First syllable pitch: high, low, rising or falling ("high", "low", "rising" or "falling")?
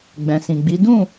low